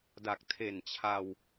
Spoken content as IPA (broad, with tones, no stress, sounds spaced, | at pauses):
d a˨˩ k̚ tʰ e˨˩ n t͡ɕʰ a˧ w